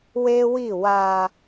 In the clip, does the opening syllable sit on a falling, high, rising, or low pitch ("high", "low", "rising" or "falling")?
high